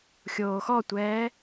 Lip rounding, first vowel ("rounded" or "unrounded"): rounded